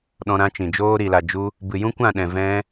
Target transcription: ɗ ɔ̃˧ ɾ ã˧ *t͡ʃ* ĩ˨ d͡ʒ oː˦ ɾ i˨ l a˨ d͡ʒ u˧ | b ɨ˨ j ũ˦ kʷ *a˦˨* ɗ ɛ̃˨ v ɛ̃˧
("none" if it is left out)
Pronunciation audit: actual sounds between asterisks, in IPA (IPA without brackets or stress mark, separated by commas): t͡ʃ, ã˦˨